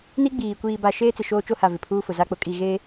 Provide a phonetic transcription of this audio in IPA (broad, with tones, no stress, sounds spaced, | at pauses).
n i˦ ɡ͡b iː˨ kʷ iː˨ b a˨ ʃ eː˦ t͡s ɪ˨ ʃ oː˦ t͡ʃ o˦ h a˨ v ɪ˨ pʰ uː˦ f ʊ˨ z a˦ k͡p ʊ˨ kʼ i˦˨ ɣ e˦